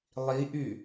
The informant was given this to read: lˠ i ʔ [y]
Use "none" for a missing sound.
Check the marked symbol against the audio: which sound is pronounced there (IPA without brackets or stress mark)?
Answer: y